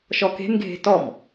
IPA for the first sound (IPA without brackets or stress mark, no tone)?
ʃ